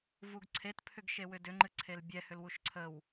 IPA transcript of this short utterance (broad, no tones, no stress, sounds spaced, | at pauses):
v u ɡ ǀʰ e t pʰ ʏ ɡ ʃ e w ʏ d ʏ ŋ͡ǃ ɨ ǀʰ e l bʲ ɛ h ʏ l w u ʃ ǀʰ ə w